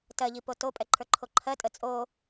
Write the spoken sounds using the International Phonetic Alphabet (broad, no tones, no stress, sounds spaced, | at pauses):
t ɜ ʎ i p o t o pʼ ɛ ǃʰ ə˞ ǃʰ o ǃʰ ɜ tʼ ə t͡sʼ o